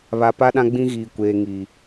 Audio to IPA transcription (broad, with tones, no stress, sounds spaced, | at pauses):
β a˨ p a˦ ɗ ã˦ ɡ͡b ĩ˦ ɣ iː˨ kʷ eː˨ ŋ i˨